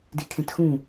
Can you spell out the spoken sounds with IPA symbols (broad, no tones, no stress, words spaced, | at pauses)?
dikʰẽtxũ